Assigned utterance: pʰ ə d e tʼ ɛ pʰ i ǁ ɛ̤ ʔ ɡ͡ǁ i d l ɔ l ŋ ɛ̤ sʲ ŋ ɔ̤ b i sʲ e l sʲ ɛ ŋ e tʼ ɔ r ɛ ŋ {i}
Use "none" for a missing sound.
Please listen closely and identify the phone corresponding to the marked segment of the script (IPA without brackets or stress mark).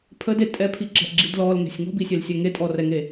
e